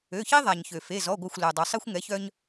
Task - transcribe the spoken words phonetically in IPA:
ø˩˧˩çi˦ ðˤa˩ɲçø˩ fe˩˧˩zɔ˩˧˩ɡʷœ˧˩xʷ lœ˩ dˤo˩sˤi˦xʷŋɛ˩˥çœ˦ɲ

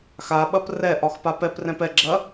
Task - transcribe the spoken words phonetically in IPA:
xaɓɐp rɛʔɒx papɛprɛ̃p ɛɡ͡ǁɐ

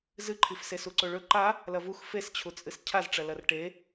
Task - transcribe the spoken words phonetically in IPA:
zɨǃʰifse suǀoɭɵ ǃa | lɐvux fest͡ɕʰut͡sʼɨs cʰazʈ͡ʂɐ lɐrʈe

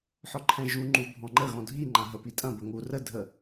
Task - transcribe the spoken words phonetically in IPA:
ħɔǃʰɛ̃ʒu ŋ͡ǃubʱɔ̃ŋ͡ǃə ɣɔ̃dʱi ŋ͡ǃãɦə pitʼɐ̃ bəŋu rə dʱə

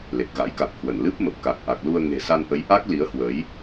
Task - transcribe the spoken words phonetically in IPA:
le˨˩k̚ɣa̰˧˥jka˨˩k̚hwə˧˩n lɨ˦˥p̚mə˨˩p̚ ka˨˩k̚ʔa˨˩k̚lu˧ə̯ ŋe̤˨˩sa˧nʔə˨˦j ʔa˦˥k̚ li˨˦ə̯hwə˨˦j

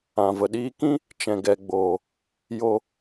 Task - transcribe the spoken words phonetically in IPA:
ã˨və˨ɗiː˧kĩ˦ | t͡ʃɛ̃˨ɡɛ˨ɡ͡boː˨ | jo˧

